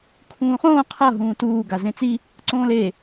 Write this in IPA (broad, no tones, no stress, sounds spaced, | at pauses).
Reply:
kʰ ũː χ õː qʰ ʌ ɦ ũː t uː ɡ a z ẽ t͡s i | ǀ õː l e